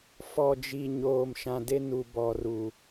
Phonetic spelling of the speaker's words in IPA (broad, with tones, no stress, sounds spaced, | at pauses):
f ɔ˨ d͡ʒ i˨ ɲ oː˨ m ʃ ã˨ d e˦ n u˨ b ɔ˨ r u˨